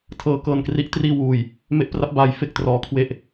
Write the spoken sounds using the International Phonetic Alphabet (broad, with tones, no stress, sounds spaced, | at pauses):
tʰ ɤː˨˩ k ɤː˨˩ n k r i˦˥ ʔ t r iː˧ w uː˨˩ j | m e˦˥ ʔ p r a˦˥ p̚ b aː˩˦ j f e˨˩ k̚ t r ɔː˩˦ kʰ w e˦˥ ʔ